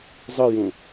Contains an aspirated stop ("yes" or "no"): no